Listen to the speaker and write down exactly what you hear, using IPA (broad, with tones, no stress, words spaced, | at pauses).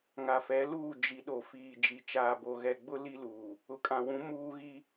ŋa˨fɛ˨˦luː˦˨ d͡ʒi˨ ɗo˨fiː˨ d͡ʒi˨t͡ʃaː˨bo˨ ɣɛ˨ɡ͡bʊ˦ li˦luː˨ | ʊ˨kʼã˨wũ˨˦ muː˦ɣi˦